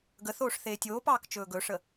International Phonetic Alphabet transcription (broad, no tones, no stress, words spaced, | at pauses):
ɡəθoːʂ θeːtʲoːpɑːk t͡ʃɵːɡɵʂə